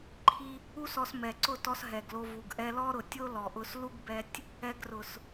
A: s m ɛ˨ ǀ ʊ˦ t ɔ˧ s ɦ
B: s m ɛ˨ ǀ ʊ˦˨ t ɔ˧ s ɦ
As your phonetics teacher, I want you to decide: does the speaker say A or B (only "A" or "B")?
B